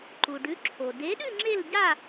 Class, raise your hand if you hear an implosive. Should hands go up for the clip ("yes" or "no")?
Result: yes